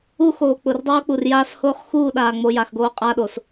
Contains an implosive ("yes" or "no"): yes